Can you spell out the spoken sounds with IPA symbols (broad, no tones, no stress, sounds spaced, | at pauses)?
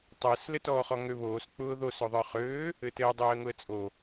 tˤ ɘː s l ɘ t ɔː χ ɔ ŋ ø β oː s k͡p ʊː ð o s ø ðˤ ə˞ χ øː | ɘ t ɘː dˤ øː ə̯ ŋ ʊ ə̯ t͡sʼ o